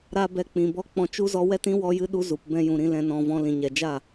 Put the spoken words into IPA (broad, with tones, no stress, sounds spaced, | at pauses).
ɾ a˦ b ɛ˧ k͡p ĩ˨ b ɔ˦ k͡p ɔ̃˧ t͡ʃ u˦ z ɔ˧ w ɛ˦ t ĩ˦ w ɔ˦ j ɨ˦ ɗ u˦ z u˨ p b ɛ̃˧ j ũ˨ ɾ ĩ˧ l ɛ̃˧ n ɔ̃˧ v ɔ̃˧ l ĩ˨ ɲ ɛ˨ d͡ʒ a˦˨